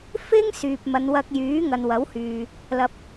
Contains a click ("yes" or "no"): no